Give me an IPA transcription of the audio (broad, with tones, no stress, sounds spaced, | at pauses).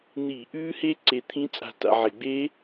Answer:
n̪ i˧˩˧ ʔ ʉː˦˥ h e˦˥ ǀ e˧ t̪ʰ ĩ˦˥ t͡sʼ a̤˧ t a̰˧ ʕ e˧˩˧ ɡ͡b e˦˥